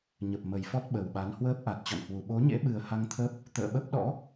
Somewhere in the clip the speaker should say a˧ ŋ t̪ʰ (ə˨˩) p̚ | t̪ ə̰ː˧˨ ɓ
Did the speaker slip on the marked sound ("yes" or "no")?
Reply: yes